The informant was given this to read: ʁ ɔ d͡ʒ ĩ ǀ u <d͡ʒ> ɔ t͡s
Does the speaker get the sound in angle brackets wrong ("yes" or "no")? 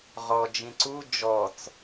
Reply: no